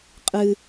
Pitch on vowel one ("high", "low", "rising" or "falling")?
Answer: low